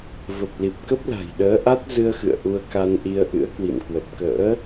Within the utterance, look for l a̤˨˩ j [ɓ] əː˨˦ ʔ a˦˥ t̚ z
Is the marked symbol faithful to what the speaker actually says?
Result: no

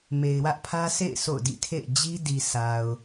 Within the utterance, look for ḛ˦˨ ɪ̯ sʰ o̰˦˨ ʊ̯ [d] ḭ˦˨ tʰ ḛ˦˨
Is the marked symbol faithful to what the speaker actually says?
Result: yes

